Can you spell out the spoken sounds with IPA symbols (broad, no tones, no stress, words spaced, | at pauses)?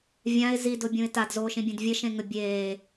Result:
vʲãɪ̯ zidʊbʲũɪ̯ tadzoːʃĩbʲẽd vʲəʃẽŋə bʲeː